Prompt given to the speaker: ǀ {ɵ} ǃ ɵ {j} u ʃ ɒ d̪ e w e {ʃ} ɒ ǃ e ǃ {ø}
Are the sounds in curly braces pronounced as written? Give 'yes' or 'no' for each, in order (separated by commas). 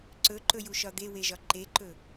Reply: yes, yes, no, no